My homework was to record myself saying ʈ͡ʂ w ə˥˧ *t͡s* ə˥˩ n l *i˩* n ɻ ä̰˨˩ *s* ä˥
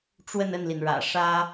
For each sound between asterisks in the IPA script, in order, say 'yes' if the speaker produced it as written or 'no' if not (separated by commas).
no, yes, no